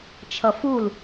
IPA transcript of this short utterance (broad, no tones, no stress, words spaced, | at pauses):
t͡ʃʰʌful